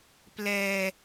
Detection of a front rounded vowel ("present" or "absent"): absent